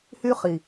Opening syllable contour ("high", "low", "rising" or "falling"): high